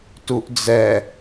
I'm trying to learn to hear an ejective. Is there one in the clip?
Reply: no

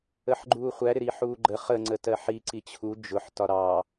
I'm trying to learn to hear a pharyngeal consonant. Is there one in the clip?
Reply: yes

